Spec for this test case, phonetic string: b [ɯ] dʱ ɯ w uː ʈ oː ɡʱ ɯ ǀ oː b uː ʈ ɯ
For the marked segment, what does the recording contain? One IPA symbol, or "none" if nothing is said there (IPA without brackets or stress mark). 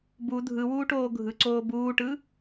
u